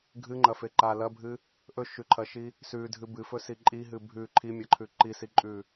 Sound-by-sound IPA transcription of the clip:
ɡʱɨŋ͡ǃɐfe ǃa lɐbʱɨ | ʔɵʃʉǃʰɐʃi | sʉdʱɨ bɨfɵsi ǃʼiɦɨ bʱʉ ǃʰimʲɐǃʰʉ ǃisiǃʼʉ

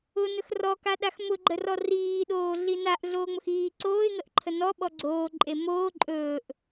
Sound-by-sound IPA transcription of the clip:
ʊ nɵxrɔka ɗaxmʊɡ͡ǃərɔ riːɗoː ɮinaʔ ɮoːŋ͡mʊxiː ǀoːɪ̯ŋəʔǃʰə nɔ ɓɔɡ͡ǀoːǃʼe moː ǃʼɵːʔ

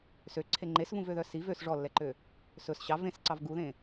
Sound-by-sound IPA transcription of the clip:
søǀʰe ŋ͡ǃesvũvøðœ si vøs ʐɔlːɛǃø | sɵs ɕɑ vẽsǀɑv ɡuðẽ

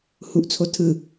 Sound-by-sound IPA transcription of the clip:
huʔt͡sʰo tʰɯ

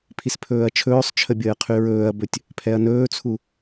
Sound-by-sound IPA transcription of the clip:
pʰispʰɵːɐ̯t͡ʃʰɵːsˤt͡ʃʰə bʲəːqʰyɹɵːɐ̯bɵtʲ | pʰɛɐ̯nɵːt͡sʰu

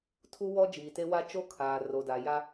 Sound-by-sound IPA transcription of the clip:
tʰu˦wɔ˦ d͡ʒiː˨te˦wa˦ t͡ʃo˦kʰaː˨ ro˨da˨ ja˦

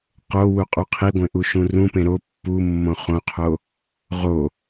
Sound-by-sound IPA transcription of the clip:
qowuqʼu qʰiɡʷẽʔuʃũ rũpẽ ɾo pːumːõ χõqʰo | ʁo

